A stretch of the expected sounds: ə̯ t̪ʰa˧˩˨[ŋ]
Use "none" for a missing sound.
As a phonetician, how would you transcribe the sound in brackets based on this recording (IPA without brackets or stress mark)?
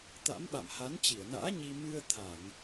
ŋ